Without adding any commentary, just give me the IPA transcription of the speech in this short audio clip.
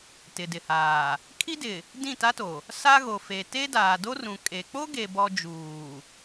t ɪ˨ d ɪ˨ h aː˨ | kʰ i˦ d ɪ˨ | d ĩ˦˨ t a˦ t o˨ | s a˦ ɣ o˨ f e˨ t e˦ d aː˨ d o˦ r ũ˨ kʼ e˨ k͡p o˦ ɡ e˨ b ɔ˨ d͡ʒ uː˨

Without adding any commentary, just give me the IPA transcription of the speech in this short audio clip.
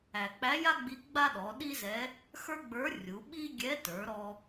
æ˩ k͡p æ˧˥ j a˥ ɡ͡b i˧˥ ɡ͡b a˥ ɗ ɔ˩˧ ɗ i˥ z ɛ˧˥ | x ə˞˥ ɡ͡b ə˞˧˥ rʲ u˩˧ ɓ i˥ ɡʲ ɛ˧˥ t ə˞˩˧ ɾ ɔ˧

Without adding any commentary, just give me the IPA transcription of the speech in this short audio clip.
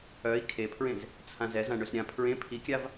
œ i̯ kʰ e pʰ ɹ ẽ z | t͡sʰ ã z ɛ z ã ɳ ø s ɾʲ ã pʰ ɹ ẽ pʰ i kʲ a v

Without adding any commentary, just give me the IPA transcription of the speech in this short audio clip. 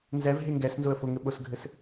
n z ɛ v ɦ e ŋ ɡ ɛ s n z ʊ ə̯ f ʊ ŋ ɘ ɓ ʊ s ɡʱ ɘ s

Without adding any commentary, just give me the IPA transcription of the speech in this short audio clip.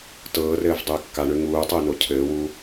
t ɤː r ɘː v dˤ ɘː kː a ɳ ø ŋ uː tˤ ɘː n o cʰ ɘː w u

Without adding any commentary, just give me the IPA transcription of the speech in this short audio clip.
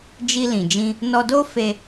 d͡ʒ i˧ l ĩ˨ d͡ʒ ĩ˧ | n ɔ˧ d o˦ f e˦

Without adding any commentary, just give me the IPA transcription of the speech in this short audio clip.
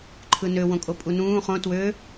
ǃʰ ɯ n ø w õ kʼ o pʼ u n ũː χ õ t w ø

